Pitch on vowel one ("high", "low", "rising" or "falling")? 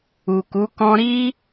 low